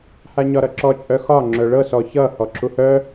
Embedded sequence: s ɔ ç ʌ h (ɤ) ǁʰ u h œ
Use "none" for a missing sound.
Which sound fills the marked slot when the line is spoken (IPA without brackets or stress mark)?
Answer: ɔ